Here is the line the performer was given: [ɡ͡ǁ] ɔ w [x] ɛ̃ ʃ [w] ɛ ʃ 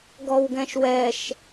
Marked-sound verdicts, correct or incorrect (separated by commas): incorrect, incorrect, correct